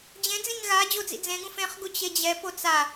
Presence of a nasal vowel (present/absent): present